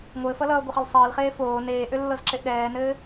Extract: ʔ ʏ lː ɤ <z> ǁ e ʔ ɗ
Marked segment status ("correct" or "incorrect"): correct